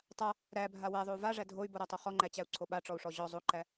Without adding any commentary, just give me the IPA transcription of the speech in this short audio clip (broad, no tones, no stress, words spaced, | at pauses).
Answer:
tˤa | ɾæbʱa wæðˤou̯ vaʐæ dʱoy̯boɾatˤo χɔŋ͡ǃæt͡ɕæu̯ǀʰo ɓaʈ͡ʂɔu̯ʂɔ ʑɔ zˤoǃæ